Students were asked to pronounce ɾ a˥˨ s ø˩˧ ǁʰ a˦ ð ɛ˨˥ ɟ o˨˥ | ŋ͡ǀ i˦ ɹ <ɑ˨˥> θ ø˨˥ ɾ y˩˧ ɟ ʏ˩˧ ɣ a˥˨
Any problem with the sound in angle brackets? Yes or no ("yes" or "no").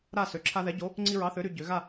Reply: no